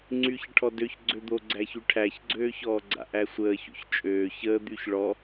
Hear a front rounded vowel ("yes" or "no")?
yes